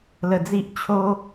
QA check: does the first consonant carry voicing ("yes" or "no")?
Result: yes